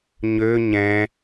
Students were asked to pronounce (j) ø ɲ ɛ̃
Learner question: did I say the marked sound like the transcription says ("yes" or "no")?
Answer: no